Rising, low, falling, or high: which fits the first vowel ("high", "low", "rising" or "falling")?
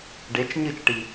rising